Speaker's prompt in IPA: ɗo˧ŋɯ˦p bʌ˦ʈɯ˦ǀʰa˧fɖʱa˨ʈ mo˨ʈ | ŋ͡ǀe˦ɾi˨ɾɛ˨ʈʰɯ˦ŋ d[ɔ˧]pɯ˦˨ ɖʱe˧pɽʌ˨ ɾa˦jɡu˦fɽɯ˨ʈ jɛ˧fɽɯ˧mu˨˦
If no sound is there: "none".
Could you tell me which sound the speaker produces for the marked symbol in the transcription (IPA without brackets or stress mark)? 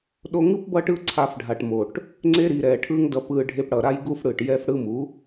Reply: ʌ˧